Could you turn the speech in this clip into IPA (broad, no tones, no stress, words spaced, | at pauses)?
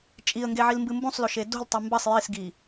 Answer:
t͡ʃʼiə̯ŋɡeʕilmbɨ mbũsˤloʃe do̤ltˤʉ mbɐsˤ jisɡi